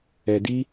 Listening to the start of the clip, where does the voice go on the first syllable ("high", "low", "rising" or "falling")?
low